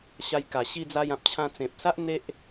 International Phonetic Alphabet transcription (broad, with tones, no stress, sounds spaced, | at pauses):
ɕ a˧ j k a˨˩ ɕ i˧ d͡z a˧ j ã˨ p̚ t͡ɕʰ ã˧ t͡s ẽ˨ p̚ s a˦ ʔ n̪ e˦ ʔ